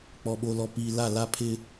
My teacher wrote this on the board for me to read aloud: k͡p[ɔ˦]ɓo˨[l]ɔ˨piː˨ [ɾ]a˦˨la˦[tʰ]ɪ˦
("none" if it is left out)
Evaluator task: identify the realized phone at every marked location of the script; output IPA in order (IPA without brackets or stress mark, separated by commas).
ɔ˨, l, l, pʰ